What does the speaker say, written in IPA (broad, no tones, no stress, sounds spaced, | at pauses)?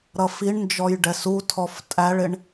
ɾ ʌ f i ɳ n d͡ʒ ɔ j ɖ ɛ s u tʰ ɔ f tʼ æ ɭ ɪ ɳ